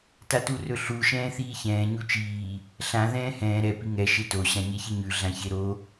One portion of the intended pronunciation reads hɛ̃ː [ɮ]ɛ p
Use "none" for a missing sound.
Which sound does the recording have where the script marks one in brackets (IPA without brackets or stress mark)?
ɾ